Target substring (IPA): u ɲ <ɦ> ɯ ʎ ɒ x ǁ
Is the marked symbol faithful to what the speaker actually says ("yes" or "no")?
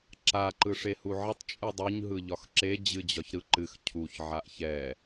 yes